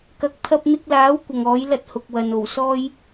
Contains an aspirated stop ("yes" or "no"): yes